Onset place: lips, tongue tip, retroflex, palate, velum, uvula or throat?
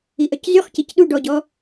throat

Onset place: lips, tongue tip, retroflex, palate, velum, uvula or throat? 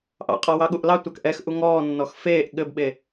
throat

